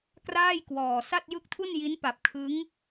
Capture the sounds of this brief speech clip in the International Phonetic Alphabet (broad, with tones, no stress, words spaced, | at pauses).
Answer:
kraː˥˩jkwɔː˨˩ sa˥˩t̚jɯ˥˩k̚tʰu˥˩n ji˦˥npa˨˩p̚ kʰɯ˦˥ŋ